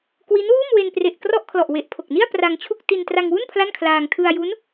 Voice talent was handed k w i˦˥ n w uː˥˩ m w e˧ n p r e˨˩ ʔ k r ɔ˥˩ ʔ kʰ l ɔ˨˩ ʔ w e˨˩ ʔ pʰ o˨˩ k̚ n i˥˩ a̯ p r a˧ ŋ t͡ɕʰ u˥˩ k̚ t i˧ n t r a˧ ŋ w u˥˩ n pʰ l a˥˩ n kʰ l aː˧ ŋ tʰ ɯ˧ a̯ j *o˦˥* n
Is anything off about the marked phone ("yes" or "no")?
yes